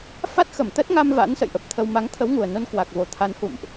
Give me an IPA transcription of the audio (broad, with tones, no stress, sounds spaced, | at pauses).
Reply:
f a˦˥ t̚ x ə˧˩ m t̪ ə˦˥ t̚ ŋ a˧ m v a̰˧˥ n s ə̰˧˨ j ʔ ə˨˩ p̚ t̪ʰ ə˧ w m a˨˦ ŋ t̪ʰ ə˨˦ w ŋ u˨˩ ə̯ n o˧ n k w a˨˩ k̚ v o˨˩ t̪ʰ a˨˦ n h ṵ˧˨ m ʔ